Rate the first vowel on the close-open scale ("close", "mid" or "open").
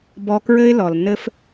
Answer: mid